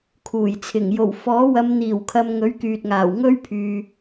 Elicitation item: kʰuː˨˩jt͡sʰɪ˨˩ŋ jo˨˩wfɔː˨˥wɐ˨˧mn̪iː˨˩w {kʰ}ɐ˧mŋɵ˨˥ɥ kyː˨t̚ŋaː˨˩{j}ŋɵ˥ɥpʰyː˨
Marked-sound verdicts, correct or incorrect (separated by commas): correct, incorrect